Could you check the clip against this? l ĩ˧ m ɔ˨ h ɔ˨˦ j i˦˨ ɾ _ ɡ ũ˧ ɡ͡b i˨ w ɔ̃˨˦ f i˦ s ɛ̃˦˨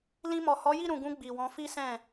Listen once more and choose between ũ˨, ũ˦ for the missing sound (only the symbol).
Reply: ũ˨